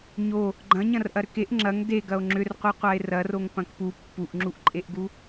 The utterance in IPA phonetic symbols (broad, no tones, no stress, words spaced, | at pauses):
ɲo | ɡ͡ǃɐ̃ ɲɐ̃rʔɐɾʏkeʔ ŋ͡ǁɐŋ deɡɐo̯ ŋ͡ǁʏrqʷœqʷae̯ rɐr oŋpɐ̃kpu pːuʔŋ͡ǁuʔǃʼeʔɡu